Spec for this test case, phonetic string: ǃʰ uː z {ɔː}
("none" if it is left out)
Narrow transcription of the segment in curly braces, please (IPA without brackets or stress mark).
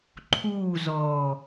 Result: ɔː